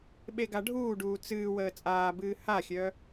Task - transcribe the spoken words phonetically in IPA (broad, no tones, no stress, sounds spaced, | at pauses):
ɓ e ɡ a ɖʱ uː ɖ uː t͡s ɨː w əː t͡sʼ aː b ɨː h a xʲ œː